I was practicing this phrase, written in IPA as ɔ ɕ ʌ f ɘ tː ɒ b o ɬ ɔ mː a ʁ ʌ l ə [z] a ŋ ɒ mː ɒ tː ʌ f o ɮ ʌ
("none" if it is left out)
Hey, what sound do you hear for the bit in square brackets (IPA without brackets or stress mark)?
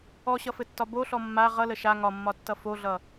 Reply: ʃ